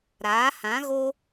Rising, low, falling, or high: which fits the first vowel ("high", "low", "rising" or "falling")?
rising